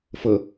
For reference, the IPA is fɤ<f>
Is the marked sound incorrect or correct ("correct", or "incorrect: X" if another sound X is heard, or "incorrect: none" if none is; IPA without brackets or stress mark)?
incorrect: none